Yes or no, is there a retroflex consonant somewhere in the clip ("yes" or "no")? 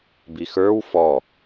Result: no